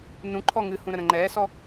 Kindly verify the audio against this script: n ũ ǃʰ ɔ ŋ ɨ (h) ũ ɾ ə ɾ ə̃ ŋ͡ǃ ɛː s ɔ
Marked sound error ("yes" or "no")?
no